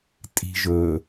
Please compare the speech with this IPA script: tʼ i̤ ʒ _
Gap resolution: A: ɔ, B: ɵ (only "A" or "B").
B